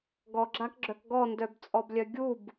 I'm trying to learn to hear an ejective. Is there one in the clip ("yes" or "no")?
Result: yes